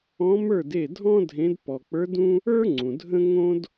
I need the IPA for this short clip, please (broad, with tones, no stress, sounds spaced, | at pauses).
ɔ̃˧˥ m ə˞˥˩ d e˥˩ dʱ ɔ̃˥ dʱ ẽ˧˥ d p ɔ˨ k͡p ə˞˧˥ d ũ˥ | ə˞˥ ŋ͡ǀ ũ˨ dʱ ə̃˥ ŋ õ˥ d